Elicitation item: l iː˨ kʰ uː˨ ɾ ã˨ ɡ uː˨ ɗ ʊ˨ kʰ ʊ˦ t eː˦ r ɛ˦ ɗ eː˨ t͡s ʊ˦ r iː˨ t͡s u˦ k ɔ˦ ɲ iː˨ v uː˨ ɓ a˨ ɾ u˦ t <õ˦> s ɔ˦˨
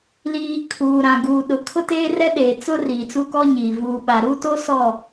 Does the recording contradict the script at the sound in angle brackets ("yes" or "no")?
yes